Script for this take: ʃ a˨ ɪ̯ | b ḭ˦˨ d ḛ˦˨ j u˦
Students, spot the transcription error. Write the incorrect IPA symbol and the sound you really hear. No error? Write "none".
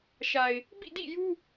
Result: ḛ˦˨ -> ḭ˦˨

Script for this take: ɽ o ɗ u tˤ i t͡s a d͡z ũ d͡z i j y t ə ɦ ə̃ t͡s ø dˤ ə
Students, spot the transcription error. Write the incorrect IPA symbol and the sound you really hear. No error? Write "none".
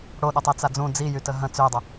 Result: none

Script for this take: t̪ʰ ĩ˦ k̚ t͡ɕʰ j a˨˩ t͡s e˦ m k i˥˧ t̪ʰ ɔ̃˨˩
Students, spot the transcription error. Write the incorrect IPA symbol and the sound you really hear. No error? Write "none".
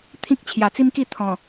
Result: e˦ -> i˦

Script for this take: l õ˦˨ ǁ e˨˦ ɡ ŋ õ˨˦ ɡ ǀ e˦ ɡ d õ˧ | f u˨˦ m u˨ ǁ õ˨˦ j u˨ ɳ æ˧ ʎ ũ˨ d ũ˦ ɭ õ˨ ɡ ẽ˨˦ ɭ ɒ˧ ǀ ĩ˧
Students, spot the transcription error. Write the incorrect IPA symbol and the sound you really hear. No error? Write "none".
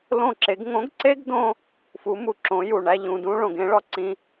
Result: none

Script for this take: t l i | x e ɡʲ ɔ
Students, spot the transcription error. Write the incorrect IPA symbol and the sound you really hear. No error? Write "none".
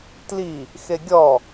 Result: none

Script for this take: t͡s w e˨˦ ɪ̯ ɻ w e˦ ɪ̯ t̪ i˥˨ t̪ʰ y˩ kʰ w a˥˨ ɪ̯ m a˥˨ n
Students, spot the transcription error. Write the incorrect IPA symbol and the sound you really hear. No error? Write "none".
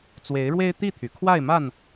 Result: none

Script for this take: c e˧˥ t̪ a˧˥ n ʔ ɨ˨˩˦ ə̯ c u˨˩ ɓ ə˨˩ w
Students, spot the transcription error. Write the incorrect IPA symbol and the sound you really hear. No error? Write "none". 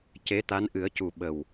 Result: none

